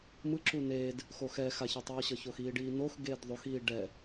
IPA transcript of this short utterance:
mɯ ǁuneːd | xoxɛ xaçɛtˤʌːɕʌ çoxiːɖiːnox ɡeːdðˤoxiː ɖɛ

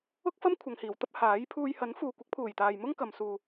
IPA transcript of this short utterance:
ʊ˥k̚fɐ˥m kʷʰɐ˨ŋhiː˨˩wt̪ɐ˥p̚ haː˨˥jpʰuː˧j hɐ˨˥nfuː˨kʷɪ˨˥k̚pʰuː˨˩j t̪aː˨jmʊ˥ŋkɐ˨msuː˨

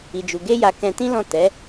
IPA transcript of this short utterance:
i˨d͡ʒu˨ ɡe˧ja˨ kɛ̃˧tĩ˦lɔ̃˦˨ tɛ˨˦

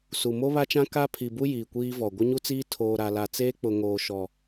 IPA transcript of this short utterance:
su˨ mo˦βa˦t͡ʃã˦ ka˦ pʰi˨bu˦ jiː˨kʷiː˦vɔ˨ ɡʷɪ˦ɲu˦t͡siː˦ tʰoː˨ɾa˨ la˨t͡seː˦k͡pʊ˨ ŋoː˨ʃɔ˨

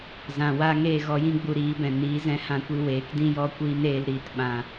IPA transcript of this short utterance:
zã˨wa˧ ŋeː˦˨ɣɔ˧jĩ˦ɡ͡bu˧ ɾiː˨˦bɛ̃˨ niː˨˦zɛ̃˧hã˧kʷi˧ weː˨˦kdĩ˦ jɔ˦kʷiː˦n eː˧l ɾiː˧tɓã˧

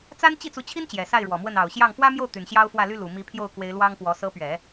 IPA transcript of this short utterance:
t͡sa˥n t͡ɕi˥˩t͡su˧˥t͡ɕʰi˥n t͡ɕjɛ˨˩sa˥˩ɪ̯ɻwɔ˨˩mwə˥˩n ɑ˨˩ʊ̯ɕjɑ˥˩ŋ fwä˥mjo˥˩ʊ̯ t̪y˨˩nɕjɑ˥ʊ̯fwä˥˩ly˥ lu˨˩ mi˧˥pʰjo˥˩ʊ̯kwe˧˥ɪ̯ lwɑ˥ŋpwɔ˧˥ sɤ˧˥pɥɛ˨˩˦

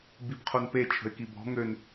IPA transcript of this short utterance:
bibqʰonpe t͡ʃʰə̤ɪ̯kibɔ̤ ŋøn

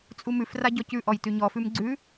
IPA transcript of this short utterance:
t͡sʼumʉfra ɟɔcʉʔɔj tʉɲɔfʉm ɡ͡ǀʉ

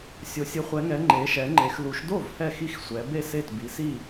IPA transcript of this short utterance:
sʲo˩˧sʲɯ˩˧χʷɛ˩˧ŋɛ˩˧ ŋ͡ǃe˩˧ ʃɛ˩˧ŋ͡ǃe˩˧x lu˩˧ʃdo˥˩v hɛ˥˩xi˥˩x sʷɛ˩˧be˥˩se˥˩t bi˩˧si˥˩

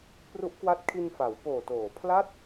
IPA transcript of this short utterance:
pru˦˥ʔkwa˦˥t̚ kʰi˧nfa˩˦w poː˨˩ toː˨˩ pʰla˥˩t̚

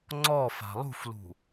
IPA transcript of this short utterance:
ŋ͡ǀɔ fa̤lˠṳflṳ

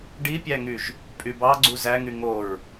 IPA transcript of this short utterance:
ɖipʲæŋyʒ | pʼybɑɡ͡ǀu zæŋy ŋoɹ

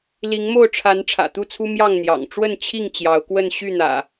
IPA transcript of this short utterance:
li˨˦ŋmo˥˨ʊ̯ʈ͡ʂʰa˨˦n ʈ͡ʂʰä̰˨˩t̪u˥˨t͡sʰu˦ mjɑ˥˨ŋn̪jɑ̰˨˩ŋ ʈ͡ʂwə˥˨n t͡ɕʰi˥˨ŋ t͡ɕjɑ˨˦ʊ̯kwə˥˨n ɕy˥˨n̪ä̰˨˩

